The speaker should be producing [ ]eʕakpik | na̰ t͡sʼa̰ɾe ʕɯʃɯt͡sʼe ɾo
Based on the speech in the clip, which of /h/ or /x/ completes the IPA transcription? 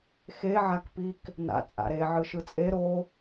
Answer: x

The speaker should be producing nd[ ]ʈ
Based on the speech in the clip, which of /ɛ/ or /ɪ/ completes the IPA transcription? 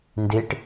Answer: ɪ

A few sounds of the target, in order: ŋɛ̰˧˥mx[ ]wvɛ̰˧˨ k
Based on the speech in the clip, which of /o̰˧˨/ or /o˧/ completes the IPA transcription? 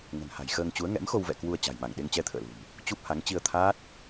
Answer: o˧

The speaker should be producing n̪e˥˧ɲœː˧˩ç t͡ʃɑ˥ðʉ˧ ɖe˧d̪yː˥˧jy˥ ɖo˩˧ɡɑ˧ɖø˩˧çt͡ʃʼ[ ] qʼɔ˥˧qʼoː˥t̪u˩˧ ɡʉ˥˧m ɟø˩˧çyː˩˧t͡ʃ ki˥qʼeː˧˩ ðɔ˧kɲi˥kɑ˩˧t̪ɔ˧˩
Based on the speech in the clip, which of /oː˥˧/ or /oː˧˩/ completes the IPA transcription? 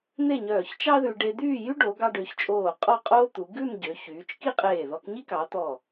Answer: oː˧˩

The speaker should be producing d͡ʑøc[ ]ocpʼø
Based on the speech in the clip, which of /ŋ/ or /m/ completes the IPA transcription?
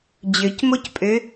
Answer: m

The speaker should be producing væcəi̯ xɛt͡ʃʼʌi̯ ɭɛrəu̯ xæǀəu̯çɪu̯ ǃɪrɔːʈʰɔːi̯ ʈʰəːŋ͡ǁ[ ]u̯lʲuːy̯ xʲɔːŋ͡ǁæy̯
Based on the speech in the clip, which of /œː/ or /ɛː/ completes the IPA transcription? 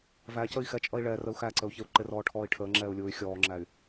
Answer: ɛː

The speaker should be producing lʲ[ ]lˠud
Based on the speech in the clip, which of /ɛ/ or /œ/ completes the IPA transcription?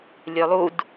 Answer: œ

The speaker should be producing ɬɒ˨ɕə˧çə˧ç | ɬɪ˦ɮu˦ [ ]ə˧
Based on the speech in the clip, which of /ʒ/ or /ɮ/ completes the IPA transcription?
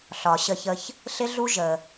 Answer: ʒ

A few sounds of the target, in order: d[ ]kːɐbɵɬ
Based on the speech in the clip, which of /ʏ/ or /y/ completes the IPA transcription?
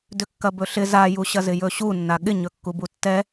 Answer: ʏ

